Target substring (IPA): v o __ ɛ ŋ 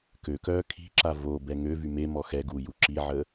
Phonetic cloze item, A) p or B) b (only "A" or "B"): B